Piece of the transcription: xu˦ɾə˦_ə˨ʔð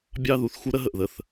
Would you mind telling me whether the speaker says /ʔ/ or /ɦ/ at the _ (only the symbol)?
ɦ